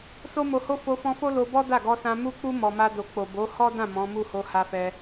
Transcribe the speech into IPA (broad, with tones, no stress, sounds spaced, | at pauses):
s o˦ m o˧ h o˦ f o˧ f ɔ̃˧ f o˦ l o˧ b ɔ˦ d a˦˨ ɡ ɔ˧ s ã˧ m u˦ k͡p u˦ m ɔ˧ m a˦ d o˧ k͡p o˨ b o˨˦ h ɔ˦ d ã˦˨ m ɔ̃˨˦ m u˦˨ h o˧ h a˧ f ɛ˧